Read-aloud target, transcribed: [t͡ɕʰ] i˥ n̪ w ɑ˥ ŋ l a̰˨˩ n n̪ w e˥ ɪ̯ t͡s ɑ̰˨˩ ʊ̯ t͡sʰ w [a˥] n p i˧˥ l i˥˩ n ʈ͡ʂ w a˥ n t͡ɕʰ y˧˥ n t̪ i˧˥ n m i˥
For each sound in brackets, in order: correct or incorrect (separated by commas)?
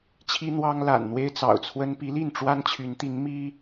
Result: correct, incorrect